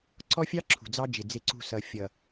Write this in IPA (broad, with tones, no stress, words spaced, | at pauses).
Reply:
ǀɔ˦fʲɑ˦ ǁʰṳ˨d͡zɑ˦d͡ʒɪ˨ d͡zɪ˨ǀṳ˨ sʌ˨ fʲʌ˨